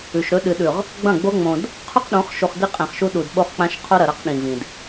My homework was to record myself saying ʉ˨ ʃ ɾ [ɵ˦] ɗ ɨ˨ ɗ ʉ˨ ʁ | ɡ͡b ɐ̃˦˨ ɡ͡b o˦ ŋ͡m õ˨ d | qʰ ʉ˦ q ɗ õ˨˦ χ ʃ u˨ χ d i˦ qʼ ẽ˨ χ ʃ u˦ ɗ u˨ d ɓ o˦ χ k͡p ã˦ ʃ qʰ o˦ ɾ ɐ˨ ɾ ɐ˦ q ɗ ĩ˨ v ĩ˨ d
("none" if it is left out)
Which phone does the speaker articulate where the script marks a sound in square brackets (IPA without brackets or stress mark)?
ɵ˦